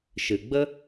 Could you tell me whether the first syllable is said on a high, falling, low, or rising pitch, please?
low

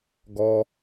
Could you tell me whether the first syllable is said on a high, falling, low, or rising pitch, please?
high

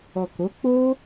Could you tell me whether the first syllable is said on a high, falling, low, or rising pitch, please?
low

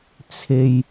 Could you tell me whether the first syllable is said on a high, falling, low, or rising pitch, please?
low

